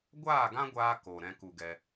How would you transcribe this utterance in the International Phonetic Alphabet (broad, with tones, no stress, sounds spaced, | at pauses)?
ɡʷ aː˦˨ ɡ ã˦ ɡʷ aː˧ k o˨ ɾ ɛ̃˧ k u˨ ɡ ɛ˧